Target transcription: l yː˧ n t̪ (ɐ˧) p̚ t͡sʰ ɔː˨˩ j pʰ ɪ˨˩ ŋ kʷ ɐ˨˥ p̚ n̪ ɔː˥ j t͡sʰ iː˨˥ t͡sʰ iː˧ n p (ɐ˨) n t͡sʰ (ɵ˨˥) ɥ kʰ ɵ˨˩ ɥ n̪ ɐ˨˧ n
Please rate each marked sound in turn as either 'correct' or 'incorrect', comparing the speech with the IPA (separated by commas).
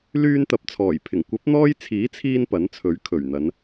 incorrect, incorrect, correct